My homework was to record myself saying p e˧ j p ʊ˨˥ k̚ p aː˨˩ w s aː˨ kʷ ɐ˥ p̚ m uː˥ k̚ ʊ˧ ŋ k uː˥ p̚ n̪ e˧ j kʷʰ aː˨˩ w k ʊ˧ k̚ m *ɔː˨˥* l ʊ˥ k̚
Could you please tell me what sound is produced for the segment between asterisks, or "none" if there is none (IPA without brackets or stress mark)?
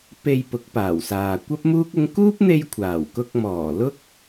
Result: ɔː˨˩